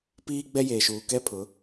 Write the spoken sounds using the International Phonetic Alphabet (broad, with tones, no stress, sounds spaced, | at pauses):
p iː˦ ɡ͡b ɛ˦ j eː˨ ʃ uː˨ k ɛ˦ pʰ ʊ˨˦